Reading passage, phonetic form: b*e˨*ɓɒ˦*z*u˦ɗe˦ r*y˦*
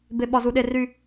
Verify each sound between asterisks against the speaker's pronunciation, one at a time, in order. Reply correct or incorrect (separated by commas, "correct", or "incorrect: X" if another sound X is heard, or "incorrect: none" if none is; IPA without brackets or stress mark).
incorrect: e˦, correct, correct